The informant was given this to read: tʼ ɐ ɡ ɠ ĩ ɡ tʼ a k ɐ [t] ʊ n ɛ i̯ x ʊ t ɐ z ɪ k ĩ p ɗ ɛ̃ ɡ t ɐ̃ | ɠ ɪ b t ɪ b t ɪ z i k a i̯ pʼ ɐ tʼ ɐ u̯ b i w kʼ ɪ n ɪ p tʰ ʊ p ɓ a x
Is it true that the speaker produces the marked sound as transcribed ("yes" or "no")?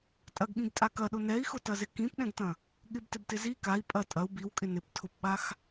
no